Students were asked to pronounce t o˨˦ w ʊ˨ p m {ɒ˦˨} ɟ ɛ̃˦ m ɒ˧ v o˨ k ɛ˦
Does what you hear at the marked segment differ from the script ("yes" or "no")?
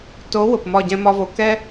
no